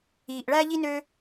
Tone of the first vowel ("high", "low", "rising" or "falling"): low